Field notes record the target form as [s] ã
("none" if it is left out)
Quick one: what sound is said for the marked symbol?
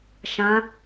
ʃ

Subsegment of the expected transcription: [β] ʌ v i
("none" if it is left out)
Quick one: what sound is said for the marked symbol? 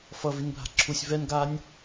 f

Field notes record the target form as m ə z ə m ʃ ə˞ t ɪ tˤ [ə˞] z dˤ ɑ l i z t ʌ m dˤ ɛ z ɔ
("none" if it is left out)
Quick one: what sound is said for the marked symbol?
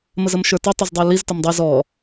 ʌ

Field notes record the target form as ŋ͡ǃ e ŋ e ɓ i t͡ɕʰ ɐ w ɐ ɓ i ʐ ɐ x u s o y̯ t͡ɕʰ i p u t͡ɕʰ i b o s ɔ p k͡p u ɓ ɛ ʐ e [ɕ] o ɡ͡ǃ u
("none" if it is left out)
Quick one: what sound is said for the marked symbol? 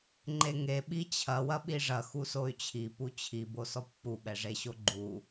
ɕ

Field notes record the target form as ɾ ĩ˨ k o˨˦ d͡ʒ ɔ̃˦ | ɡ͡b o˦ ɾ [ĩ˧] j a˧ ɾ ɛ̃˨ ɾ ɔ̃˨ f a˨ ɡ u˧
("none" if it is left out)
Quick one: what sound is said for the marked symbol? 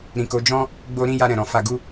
ĩ˦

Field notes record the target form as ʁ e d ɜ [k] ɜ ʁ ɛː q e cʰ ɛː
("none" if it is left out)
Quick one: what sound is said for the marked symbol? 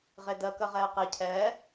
k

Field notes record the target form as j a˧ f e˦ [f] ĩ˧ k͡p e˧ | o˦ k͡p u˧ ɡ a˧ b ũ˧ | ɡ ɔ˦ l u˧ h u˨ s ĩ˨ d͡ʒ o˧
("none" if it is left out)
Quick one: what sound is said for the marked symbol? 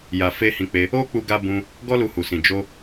h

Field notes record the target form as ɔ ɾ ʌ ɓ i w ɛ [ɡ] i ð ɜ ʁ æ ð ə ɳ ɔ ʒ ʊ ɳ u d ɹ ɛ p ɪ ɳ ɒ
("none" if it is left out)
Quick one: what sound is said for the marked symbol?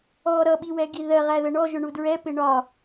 ɡ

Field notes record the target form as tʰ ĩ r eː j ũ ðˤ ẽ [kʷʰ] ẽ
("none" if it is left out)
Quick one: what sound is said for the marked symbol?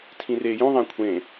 kʷʰ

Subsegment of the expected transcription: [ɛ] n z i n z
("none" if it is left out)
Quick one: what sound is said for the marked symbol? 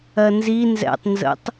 ɜ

